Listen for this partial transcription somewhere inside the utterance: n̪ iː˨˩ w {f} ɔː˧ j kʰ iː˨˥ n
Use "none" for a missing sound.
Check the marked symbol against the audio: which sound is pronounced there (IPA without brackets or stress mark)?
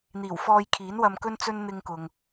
f